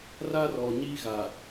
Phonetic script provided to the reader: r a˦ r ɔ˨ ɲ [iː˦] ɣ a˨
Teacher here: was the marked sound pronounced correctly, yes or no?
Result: yes